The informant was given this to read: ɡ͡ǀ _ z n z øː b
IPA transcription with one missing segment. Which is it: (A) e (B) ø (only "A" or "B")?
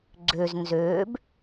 B